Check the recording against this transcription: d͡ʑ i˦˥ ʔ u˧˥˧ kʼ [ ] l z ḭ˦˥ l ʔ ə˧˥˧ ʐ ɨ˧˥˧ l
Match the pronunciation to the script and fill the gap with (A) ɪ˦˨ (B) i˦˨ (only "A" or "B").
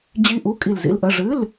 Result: B